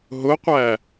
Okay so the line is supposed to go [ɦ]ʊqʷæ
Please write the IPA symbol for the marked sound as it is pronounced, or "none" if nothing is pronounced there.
ɦ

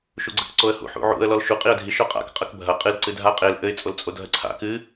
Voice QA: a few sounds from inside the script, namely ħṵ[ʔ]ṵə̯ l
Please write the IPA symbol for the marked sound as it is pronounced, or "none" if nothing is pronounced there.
ʕ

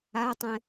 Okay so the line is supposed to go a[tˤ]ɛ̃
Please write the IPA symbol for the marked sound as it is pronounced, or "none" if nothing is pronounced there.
tˤ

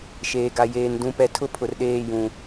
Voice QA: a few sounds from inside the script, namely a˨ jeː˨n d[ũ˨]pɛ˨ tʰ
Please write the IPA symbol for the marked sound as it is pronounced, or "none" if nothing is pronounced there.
ũ˨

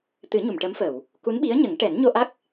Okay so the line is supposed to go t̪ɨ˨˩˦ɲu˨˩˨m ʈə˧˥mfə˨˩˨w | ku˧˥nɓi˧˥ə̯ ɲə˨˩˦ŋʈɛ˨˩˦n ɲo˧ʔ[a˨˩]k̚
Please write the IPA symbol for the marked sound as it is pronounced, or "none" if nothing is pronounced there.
a˦˥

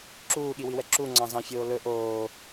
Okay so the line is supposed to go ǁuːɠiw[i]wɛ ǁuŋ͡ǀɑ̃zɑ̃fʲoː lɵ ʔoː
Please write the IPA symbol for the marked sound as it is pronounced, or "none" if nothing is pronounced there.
i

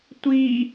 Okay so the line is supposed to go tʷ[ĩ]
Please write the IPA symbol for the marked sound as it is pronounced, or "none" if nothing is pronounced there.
i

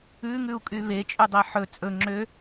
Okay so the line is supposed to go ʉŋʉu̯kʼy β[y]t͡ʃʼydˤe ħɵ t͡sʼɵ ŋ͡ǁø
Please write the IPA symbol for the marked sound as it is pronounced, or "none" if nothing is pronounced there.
e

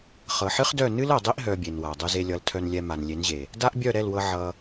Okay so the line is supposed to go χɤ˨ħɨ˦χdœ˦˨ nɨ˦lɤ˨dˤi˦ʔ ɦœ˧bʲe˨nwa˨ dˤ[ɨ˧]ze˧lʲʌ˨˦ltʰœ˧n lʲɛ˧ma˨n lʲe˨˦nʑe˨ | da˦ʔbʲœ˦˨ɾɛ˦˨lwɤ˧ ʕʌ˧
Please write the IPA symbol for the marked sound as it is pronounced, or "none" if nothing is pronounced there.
ɨ˧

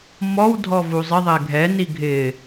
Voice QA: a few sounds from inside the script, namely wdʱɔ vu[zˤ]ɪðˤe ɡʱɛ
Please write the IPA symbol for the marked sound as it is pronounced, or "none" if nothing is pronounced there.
zˤ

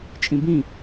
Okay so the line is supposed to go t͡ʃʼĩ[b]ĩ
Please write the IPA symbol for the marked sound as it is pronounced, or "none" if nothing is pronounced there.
b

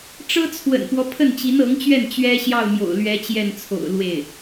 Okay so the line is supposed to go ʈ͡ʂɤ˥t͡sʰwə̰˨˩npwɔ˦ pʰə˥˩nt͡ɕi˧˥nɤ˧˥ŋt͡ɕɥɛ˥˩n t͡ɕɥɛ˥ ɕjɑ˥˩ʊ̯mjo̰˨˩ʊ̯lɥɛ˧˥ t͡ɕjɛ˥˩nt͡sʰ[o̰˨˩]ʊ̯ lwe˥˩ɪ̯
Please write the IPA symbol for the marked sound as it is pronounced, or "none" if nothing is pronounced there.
o̰˨˩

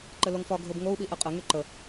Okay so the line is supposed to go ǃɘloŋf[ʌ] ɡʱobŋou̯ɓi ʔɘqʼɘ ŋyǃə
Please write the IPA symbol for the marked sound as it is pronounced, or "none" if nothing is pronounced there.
ɒ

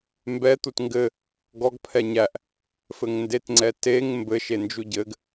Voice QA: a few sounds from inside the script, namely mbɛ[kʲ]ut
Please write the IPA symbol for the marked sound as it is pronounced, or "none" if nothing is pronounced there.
t̪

